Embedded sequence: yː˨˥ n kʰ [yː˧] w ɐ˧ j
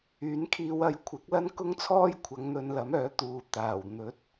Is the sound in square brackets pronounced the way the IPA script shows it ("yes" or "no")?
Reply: no